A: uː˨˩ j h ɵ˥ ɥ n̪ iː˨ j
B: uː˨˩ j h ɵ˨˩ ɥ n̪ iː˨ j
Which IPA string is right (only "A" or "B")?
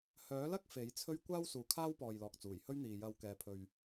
A